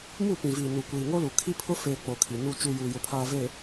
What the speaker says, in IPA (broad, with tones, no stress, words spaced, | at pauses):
mu˦˨pĩ˨viː˨ nu˨kʷiː˨ŋo˦lu˨ kʰi˦pʰʊ˦feː˨ k͡po˨kʰi˨nu˦˨ t͡ʃu˨ juː˨jʊ˨pʰaː˨ ve˨